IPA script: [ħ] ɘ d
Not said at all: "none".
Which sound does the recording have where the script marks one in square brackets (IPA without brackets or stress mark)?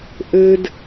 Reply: ʔ